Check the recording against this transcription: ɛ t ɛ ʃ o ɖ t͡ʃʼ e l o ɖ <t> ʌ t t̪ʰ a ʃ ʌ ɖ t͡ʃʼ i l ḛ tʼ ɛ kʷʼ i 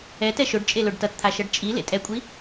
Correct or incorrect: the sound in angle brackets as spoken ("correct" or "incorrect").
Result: correct